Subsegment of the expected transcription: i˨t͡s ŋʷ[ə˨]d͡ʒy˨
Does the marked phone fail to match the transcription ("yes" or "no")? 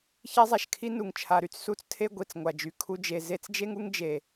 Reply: yes